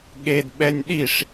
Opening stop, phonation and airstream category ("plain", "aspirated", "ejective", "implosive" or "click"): implosive